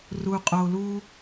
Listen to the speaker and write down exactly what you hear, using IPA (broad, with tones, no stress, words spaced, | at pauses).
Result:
ru˧qʼo˧lu˦